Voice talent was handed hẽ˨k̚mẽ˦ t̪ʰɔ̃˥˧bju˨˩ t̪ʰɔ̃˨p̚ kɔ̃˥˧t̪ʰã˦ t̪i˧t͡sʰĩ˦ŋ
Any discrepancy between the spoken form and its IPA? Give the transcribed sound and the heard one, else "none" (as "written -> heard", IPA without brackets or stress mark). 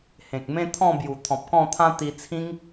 none